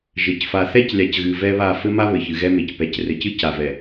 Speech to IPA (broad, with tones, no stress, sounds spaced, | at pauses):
ʒ ɘ˨ c f a˨ θ ɛ˦ c lʲ a˨ c ɣ ɨ˨ v ɛ˦ β a˦˨ f ɘ˦ m a˦ β ɘ˨ ç ɨ˨ ɣ ɛ˦ m e˨ c p ɛ˨ c r ɘ˨ c ɨ˦ c a˨ v ɛ˨